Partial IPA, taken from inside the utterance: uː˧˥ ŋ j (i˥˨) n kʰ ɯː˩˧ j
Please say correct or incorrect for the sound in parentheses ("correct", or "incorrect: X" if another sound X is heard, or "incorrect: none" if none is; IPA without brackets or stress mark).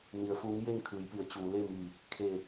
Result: incorrect: e˥˨